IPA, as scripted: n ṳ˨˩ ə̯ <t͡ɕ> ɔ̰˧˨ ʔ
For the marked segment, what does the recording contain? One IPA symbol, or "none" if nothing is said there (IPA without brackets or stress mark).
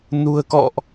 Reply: k